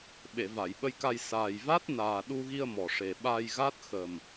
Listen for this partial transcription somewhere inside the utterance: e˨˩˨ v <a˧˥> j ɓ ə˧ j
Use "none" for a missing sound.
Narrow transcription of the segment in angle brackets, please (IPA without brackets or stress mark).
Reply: a˨˩˨